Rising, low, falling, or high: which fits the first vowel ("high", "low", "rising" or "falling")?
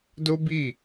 high